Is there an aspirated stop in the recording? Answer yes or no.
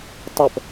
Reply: no